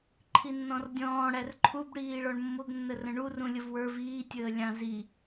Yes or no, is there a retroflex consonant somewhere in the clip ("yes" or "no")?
yes